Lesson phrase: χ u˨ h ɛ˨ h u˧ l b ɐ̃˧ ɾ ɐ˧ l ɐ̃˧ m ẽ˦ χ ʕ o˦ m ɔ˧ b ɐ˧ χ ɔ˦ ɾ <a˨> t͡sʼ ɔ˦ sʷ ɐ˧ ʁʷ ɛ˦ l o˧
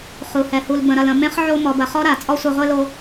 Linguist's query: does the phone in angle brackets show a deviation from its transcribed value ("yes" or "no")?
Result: no